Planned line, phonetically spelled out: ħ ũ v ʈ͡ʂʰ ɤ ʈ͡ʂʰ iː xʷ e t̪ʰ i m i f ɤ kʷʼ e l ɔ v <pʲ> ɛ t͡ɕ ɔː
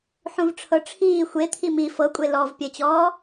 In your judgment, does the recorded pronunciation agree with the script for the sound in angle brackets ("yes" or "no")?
yes